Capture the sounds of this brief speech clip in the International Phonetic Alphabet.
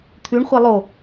t̪ʰ ʉ ɳ χʷ e lˠ o

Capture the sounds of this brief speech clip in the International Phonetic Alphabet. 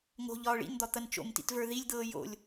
ŋ o̤ ʎ ɒː ɭ ḭ n d̪ ɒ t̪ ɐ n t͡ʃ o̰ m t ḭ t v ə˞ ð i lʲ d̪ ɤː j o̰ lʲ

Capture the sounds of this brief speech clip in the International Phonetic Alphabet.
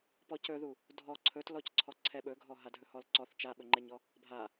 p ɔ c ɵ ð u | dʱ ɔ ǀʰ ɵ t l ɔ c ǀʰ ɔ ǀʰ ɛ ɓ ɵ ɡʱ ɔ ɦ a dʱ ɵ h ɔ l ǀ ɔ θ t͡ʃ a ɓ ɵ ŋ͡ǃ ɛ ɲ ɔ | bʱ a

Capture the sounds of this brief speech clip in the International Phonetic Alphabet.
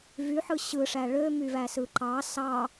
v y ħ ɯ ɕ ɯ ʂ æ ɭ ø m y v æ s ɯ ǃ ɑ s ɑ

